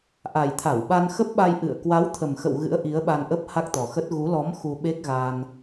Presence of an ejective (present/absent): absent